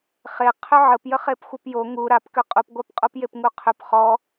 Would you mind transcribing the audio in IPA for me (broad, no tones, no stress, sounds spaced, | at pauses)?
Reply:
χ e qʰ ʏ ʕ ə p j ə χ e p xʷ ə p j o ŋ u ɾ a p k ʏ qʼ u p ɡʷ a p qʼ o p j e p ŋ u qʰ ʏ p χ ɔ